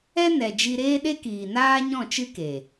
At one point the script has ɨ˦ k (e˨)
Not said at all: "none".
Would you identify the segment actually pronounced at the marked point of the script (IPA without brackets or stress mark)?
e˨